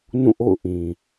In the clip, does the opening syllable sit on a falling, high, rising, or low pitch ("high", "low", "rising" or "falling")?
falling